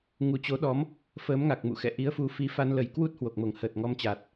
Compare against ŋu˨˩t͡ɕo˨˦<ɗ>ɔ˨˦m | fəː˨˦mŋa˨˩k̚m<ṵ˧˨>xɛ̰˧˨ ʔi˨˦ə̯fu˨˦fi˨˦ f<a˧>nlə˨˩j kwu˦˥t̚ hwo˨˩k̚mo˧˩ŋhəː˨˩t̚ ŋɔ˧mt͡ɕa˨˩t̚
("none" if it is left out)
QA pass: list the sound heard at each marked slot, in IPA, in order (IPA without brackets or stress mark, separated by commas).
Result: ɗ, ṵ˧˨, a˧